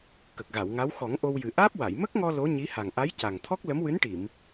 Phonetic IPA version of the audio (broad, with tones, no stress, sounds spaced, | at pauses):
k ə˨˩ k̚ ɣ a˨˩˨ w ŋ a˧˥ w x ɔ˨˩˦ ŋ ʔ o˧ w j ɨ˨˩ ʔ aː˦˥ p̚ w a˨˩˨ j m ə˦˥ k̚ ŋ ɔ˧ l o˧˥ ɲ i˧˥ h a˨˩ ŋ ʔ a˧˥ j c a˨˩ ŋ t̪ʰ ɔ˦˥ k̚ l ə˧˥ m w ɨ˧˥ n ʈ i˨˩˨ m